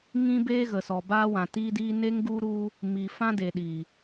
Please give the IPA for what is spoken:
ŋ ĩ˦ b eː˦ ɣ ə˨ s ɔ˨ b aː˧ w ã˨ t iː˧ d iː˧ n e˧ ŋ ɡ u˧ ɾ u˧ | m iː˨ f ã˧ d e˨ ɗ iː˨

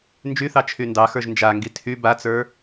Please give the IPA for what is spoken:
n d͡ʒ y θ ɑ t͡ʃʰ y n d ɑ x ə˞ ʒ n d͡ʒ a ŋ ɡ i tʰ y b a t͡s ə˞

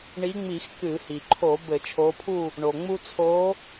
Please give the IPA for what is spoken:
ɳ i˨˦ ŋ͡m i˧˩˧ x k ɨ˧˩˧ h i˩ ǃʰ o˧˩˧ b ɘ˧˩˧ t͡ʃʰ o˨˦ pʰ u˦˨ | ɳ o˩ ŋ͡m u˦ t͡sʰ o˨˦

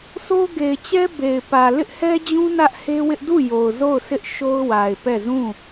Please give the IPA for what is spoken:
sʰ o˦ ɡ e˨ ɪ̯ t͡ɕ ɛ˦ b e˨ ɪ̯ p ä˨ l ɪ˦ ʔ h ɛ˦ d͡ʑ ũ˦ n ä˦ ʔ h e˦ w ɪ˦ ʔ d u˦˨ j o˨ ʊ̯ z o˦˨ ʊ̯ sʰ ɪ˦ ʔ ʃ o˦ ʊ̯ w a˨ ɪ̯ p ɛ˦˨ z ũ˦˨

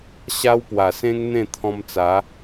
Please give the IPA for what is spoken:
ɕ a˦ w p w a˨˩ s ẽ˦ ŋ n̪ ẽ˥˧ t̪ʰ ɔ̃˧ m t͡s a˨˦

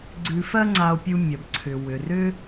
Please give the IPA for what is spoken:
ɡ͡ǀ ʉ˧ f ɜ˥ ŋ͡ǀ a˧ o̯ pʲ u˧ mʲ ɒ˩ b ǀʰ ʏ˩ w ʏ˩ r ʏ˧

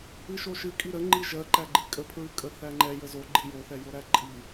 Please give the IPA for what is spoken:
ɨ ʃ o ʃ ɨ kʼ i ɾ ə ŋ͡ǃ i ʒ ɜ ǃ æ ɡ͡ǃ i kʼ ə pʰ ɹ ɨ kʼ ə θ æ ŋ͡ǃ ɛ j ə z o ɡ͡ǃ i j o θ ɛ j o ɾ æ ǃʼ i

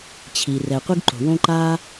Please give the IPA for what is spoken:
t͡ɕʰ i˩ r ɛ˩ qʷ ɯ˥ ɡ ǃ o̤˩ w õ˥ ǃ a˥

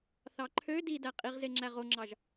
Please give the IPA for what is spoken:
θ ɑ ǃʰ ø d i d æ qʼ i ʁ z e ŋ͡ǁ æ ʁ o ŋ͡ǁ ɑ ʒ

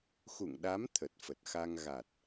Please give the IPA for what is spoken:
x ṵ˧˨ ŋ ɗ a˨˦ m t̪ʰ ə˨˩ t̚ f ə˨˩ t̚ x a˧ ŋ ɣ a˨˩ t̚

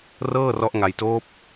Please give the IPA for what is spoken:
r ɤː˥˩ r ɔ˦˥ ʔ ŋ a˧ j t oː˦˥ p̚

